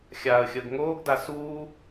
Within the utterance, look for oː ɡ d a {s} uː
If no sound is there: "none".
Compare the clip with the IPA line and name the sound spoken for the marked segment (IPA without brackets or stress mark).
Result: s